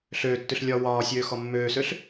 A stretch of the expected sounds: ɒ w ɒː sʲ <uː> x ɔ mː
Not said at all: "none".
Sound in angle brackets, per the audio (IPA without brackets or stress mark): øː